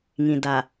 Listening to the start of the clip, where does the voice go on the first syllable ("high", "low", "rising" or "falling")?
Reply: low